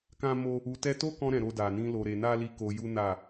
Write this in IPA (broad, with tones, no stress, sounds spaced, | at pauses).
k ã˦ m o˦ | u˧ t ɛ˦ t o˦ k ɔ̃˧ ɾ ɛ̃˨ ɾ o˧ d a˨ n ĩ˧ l o˧ ɾ e˧ n a˦ l i˧ k o˧ j u˦ n a˦˨